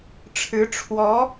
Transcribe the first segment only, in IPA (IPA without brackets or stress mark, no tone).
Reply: ʈ͡ʂʰ